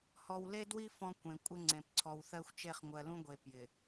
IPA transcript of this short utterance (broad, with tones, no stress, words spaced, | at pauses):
hɔ˨wle˦dwi˦ fɔ̃˦kʷẽ˨ kʷʼɪ˦ŋ͡ǀẽ˨p ǀʰɔ˨wθɜ˦xʷ t͡ʃe˦˨χŋʷɜ˨lũ˦ɡʷe˨ pjɪ˨